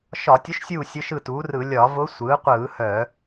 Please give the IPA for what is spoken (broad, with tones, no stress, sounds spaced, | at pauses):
ʃ ɒ˧˩˧ tʲ ʊ˧˥ ʃ sʲ uː˦˨ sʲ ʊ˧˥ ʃ ɯ˦˨ t uː˩˥ r ɯ˧˩˧ lʲ ɒ˧˩˧ v ʊ˧˥ sʷ ɯː˩˥ qʷ ɯː˧˩˧ h œ˧˩˧